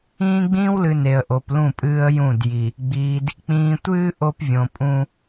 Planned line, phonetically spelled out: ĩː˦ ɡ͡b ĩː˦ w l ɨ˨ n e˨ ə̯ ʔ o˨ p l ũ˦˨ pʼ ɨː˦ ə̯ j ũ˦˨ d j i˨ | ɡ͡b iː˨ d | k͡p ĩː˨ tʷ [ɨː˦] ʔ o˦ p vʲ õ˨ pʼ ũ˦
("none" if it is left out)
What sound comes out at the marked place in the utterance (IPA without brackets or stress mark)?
ɨː˦